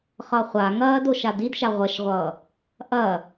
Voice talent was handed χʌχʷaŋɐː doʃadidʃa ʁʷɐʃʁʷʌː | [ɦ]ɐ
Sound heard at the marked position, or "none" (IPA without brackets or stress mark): ʔ